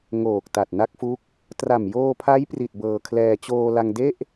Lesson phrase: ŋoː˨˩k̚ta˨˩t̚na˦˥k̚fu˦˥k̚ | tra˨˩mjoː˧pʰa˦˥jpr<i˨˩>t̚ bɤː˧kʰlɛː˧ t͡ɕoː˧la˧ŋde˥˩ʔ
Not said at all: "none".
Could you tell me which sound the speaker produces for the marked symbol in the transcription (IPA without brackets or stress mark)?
i˨˩